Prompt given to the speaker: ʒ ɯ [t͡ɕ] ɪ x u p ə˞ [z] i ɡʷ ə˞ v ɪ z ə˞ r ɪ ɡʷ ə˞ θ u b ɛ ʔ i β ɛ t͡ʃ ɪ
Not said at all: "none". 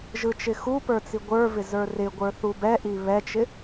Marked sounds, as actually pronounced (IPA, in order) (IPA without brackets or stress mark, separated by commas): t͡ʃ, t͡s